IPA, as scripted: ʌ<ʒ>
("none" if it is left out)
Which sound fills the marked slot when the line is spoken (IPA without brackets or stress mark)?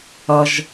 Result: ʒ